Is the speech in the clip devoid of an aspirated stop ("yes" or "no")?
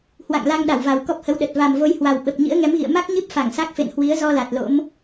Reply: yes